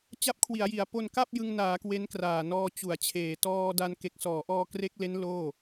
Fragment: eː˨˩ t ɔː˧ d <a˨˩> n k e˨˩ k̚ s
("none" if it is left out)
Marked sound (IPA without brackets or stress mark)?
a˧